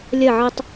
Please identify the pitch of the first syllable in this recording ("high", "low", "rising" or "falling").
falling